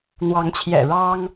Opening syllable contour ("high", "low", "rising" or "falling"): rising